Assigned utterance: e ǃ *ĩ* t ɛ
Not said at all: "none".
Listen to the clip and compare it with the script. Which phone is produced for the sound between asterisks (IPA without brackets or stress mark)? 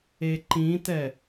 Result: ĩ